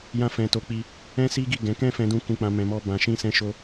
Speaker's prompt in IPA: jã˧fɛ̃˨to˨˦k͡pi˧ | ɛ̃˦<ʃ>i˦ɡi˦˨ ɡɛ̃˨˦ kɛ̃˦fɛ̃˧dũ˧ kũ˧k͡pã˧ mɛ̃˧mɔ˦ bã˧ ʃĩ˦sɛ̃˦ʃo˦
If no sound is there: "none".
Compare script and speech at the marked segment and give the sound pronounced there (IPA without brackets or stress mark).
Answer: s